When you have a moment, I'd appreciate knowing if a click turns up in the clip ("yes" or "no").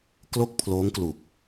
no